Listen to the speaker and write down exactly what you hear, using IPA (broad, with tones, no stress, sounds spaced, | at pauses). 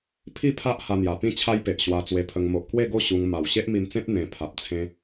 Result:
pʰ i˥˧ pʰ a˦ ʔ h a˧ n̪ j a˨˩ p ĩ˥˧ t͡ɕʰ a˦ j p e˨ ʔ ɕ w a˧ t͡s w e˧ pʰ ə˧ ŋ m o˨ ʔ k w e˥˧ ɡ o˥˧ ɕ u˧ ŋ m a˨˩ w ɕ e˦ ʔ m i˧ m t͡s ẽ˦ t̚ n̪ ẽ˨˩ pʰ a˨ p̚ t͡sʰ ẽ˦